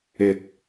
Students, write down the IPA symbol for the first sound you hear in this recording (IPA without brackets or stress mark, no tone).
ɪ